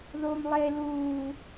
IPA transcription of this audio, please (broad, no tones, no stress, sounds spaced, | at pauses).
ð oː m lˠ e l uː